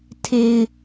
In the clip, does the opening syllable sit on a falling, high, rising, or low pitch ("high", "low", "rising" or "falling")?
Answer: low